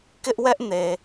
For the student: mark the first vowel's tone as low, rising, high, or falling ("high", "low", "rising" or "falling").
high